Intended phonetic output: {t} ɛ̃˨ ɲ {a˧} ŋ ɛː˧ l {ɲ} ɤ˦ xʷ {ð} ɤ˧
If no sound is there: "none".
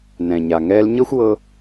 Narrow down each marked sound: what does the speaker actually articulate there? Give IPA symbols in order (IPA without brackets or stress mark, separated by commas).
n, a˨, ɲ, w